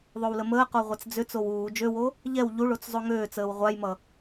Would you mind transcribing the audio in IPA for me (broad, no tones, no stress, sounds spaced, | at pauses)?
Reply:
ðˤ o w l ə m əː q o ʁʷ a t͡s d͡z ʏ t͡s o w uː d͡ʒ ø w o | ʎ ɛ w ʎ u ɭ o t͡s zˤ o ŋ øː t͡s əː w ʁʷ a j m ʌ